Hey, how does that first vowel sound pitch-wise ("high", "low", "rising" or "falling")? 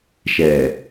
low